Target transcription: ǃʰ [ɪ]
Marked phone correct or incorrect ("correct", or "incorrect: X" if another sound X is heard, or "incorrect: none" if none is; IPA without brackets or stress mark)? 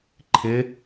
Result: correct